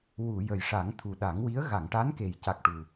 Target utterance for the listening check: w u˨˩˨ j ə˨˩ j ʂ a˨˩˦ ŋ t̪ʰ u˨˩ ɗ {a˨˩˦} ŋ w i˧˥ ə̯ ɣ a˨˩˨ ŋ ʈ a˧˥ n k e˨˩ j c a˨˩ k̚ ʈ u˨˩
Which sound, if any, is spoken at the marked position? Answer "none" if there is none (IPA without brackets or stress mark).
a˨˩˦